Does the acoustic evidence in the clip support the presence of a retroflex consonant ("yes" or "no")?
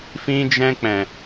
no